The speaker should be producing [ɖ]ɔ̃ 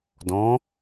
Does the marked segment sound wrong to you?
yes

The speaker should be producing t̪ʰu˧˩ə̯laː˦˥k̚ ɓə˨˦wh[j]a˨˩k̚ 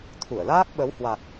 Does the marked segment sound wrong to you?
yes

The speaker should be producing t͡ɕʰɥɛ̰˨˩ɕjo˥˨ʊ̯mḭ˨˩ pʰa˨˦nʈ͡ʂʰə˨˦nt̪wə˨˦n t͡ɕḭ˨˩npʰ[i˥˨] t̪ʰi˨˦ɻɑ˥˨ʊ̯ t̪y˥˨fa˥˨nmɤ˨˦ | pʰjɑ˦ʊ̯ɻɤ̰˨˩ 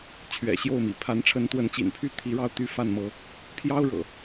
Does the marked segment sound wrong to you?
yes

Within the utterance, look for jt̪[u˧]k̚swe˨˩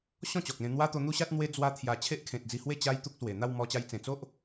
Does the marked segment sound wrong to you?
yes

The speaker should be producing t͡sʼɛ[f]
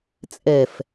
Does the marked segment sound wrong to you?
no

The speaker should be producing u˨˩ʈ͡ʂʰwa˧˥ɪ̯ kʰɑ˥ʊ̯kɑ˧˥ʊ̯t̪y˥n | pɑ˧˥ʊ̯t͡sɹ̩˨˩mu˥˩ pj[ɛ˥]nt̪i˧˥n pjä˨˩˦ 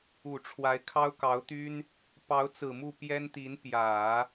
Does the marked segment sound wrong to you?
no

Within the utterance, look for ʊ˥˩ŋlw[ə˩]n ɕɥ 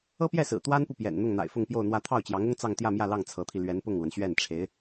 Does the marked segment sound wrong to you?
no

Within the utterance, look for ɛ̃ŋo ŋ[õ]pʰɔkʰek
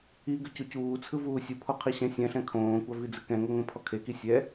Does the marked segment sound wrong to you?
no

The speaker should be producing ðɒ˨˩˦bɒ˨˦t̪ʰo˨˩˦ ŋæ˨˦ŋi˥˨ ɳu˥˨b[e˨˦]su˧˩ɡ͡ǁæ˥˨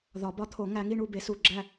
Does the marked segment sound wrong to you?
no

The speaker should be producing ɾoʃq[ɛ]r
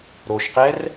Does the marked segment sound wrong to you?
no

